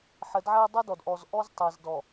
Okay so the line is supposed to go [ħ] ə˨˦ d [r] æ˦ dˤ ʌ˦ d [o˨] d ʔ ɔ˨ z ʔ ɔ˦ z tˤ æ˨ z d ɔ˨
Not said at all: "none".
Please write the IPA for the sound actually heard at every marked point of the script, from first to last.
ħ, ʕ, ɔ˨

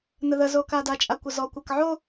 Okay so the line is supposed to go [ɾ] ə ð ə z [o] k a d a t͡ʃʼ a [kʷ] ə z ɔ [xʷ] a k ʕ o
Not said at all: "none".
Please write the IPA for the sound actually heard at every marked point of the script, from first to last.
n, o, kʷ, kʷ

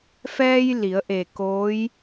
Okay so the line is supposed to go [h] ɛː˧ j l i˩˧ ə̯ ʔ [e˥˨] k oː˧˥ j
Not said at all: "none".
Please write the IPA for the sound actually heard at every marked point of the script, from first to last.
f, e˧˩

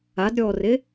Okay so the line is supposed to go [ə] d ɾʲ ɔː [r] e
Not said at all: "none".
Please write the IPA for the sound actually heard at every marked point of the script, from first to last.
a, r

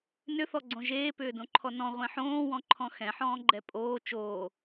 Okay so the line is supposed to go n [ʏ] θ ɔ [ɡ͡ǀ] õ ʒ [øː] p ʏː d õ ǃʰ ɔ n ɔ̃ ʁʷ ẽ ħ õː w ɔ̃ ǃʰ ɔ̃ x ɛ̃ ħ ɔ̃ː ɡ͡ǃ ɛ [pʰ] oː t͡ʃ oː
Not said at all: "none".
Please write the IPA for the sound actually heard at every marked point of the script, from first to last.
ʏ, ɡ͡ǀ, eː, pʼ

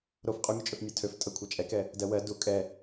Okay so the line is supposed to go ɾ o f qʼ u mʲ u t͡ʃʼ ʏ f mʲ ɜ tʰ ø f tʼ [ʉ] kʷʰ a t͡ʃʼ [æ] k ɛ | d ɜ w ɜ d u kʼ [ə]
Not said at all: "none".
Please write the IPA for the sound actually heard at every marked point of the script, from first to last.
ə, ɛ, ɛ

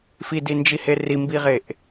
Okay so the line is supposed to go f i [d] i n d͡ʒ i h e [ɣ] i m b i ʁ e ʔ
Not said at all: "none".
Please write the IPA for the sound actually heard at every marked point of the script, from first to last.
d, r

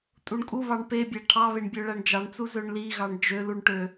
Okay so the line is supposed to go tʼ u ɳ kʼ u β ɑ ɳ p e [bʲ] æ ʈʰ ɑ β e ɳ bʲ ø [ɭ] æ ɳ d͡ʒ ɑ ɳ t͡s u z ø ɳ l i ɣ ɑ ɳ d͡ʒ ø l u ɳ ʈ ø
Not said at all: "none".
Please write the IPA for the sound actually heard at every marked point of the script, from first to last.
bʲ, ɭ

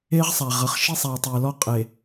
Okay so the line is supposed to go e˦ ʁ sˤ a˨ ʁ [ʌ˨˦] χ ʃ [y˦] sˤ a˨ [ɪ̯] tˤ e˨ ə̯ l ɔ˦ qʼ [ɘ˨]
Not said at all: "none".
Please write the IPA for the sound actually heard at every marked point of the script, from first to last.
ʌ˨˦, i˦, ə̯, e˨

